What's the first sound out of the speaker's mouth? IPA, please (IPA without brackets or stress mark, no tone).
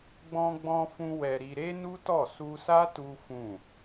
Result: ɡ͡b